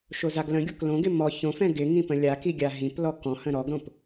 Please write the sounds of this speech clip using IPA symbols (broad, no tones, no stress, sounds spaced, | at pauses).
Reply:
ʃ o z a ɡ l ə̃ ɡʲ o k l õ ɡ ɪ m ɔ ç õ f ɛ̃ ɡ ɪ ŋ ĩ p ə̃ lʲ a k i ɡʲ a ɦ ĩ p l ɔ k ɔ̃ h ə̃ ɾ ɔ ɡ ɾ õ p